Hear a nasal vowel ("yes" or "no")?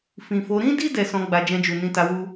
yes